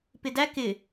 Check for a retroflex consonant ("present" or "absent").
absent